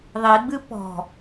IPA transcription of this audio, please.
ðˤ i ɡ͡b ɨ p ɔ̤

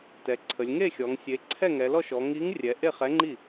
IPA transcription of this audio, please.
t ɛ˩˧ ǀʰ ə˩˧ lʲ ŋ e˥˩ xʲ ɔ˩˧ ŋ sʲ e˩˧ ǀʰ ɛ˥˩ ŋ ɛ˩˧ l ɔ˥˩ ʃ ɔ˩˧ ŋ i˨˥ ŋ rʲ ɛ˩˧ ʔ e˥˩ χ ɛ˨˥ ŋ͡ǃ i˥˩

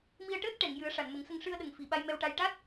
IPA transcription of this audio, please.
m i˧ ə̯ ʈ əː˦˥ t̚ ʈ ɛ˨˩˨ ŋ j ɨ˨˩˦ ə̯ ʂ a˨˩˨ n m ə˨˩˦ ŋ s ə˧ ŋ ʂ ɨ˧ ə̯ ɗ ə˨˩ ŋ f i˨˩ ɓ a˧ j m ɛ˧ w ʈ a˧ j ʈ a˦˥ t̚

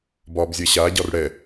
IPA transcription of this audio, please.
b ɒː b zʲ ɛ ɕ a ɟ ɒ r ɽ ɛ

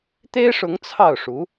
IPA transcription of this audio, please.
t̪ e˥ ɪ̯ ʂ ʊ˧˥ ŋ t͡sʰ ɑ˥˩ ʊ̯ ʂ u˧˥

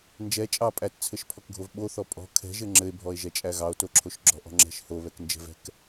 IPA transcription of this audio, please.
n d͡ʒ ɛ t͡ʃʼ ɑ pʼ æ t t͡sʰ ɘ ʃ pʰ ɔ k ɡʱ o v ɓ o θ ɔ pʼ ɔ̤ kʰ ɛ̤ ʒ ɘ ŋ͡ǁ ɘ e̯ bʱ ɔ e̯ ʒ ɛ t͡ʃʼ æ ɣ ɑ o̯ t o ǁʰ o ʃ ɡ͡ǁ ɔ̤ ʔ ɔ̤ ŋ͡ǁ ɛ̤ ʃ h o β ɛ k n d͡ʒ ɛ̤ v ɛ̤ k

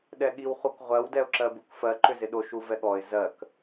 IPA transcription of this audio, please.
ɗ ɛ ɠ i w χ u k ʁʷ ɜ w d ɛ ʊ̯ ǁ ɜ b u k f ɜ ǃ ʏ z ɪ ɗ o ʃ u v ɛ ɠ ɔ ɪ̯ z ɜ k

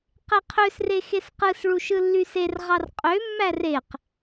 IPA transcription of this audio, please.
q e qʰ ø s r e x e s q ɯ s ɭ u ʃ ɯ lː y s e r ʁ ɑ r qʼ ø mː æ r e q

